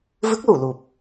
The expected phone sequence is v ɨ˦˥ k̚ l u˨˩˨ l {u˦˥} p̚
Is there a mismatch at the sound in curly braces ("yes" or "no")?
yes